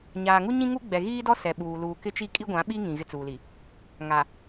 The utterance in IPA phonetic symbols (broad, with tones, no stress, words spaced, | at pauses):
ɲaː˨ŋu˦ ɲĩ˦ŋu˦ɡ͡bɛ˨ ɣiː˦dɔ˦ sɛ˨ɓuː˨ luː˨ kɪ˦t͡ʃi˦ kʼi˦ɡʷã˨˦ɓi˦ ŋĩ˨ɣɪ˦t͡suː˨li˨ | ŋa˨